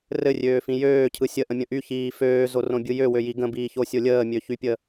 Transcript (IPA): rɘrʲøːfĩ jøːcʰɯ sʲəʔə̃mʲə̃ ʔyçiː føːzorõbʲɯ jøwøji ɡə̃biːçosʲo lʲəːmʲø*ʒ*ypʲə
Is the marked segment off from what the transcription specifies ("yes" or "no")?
yes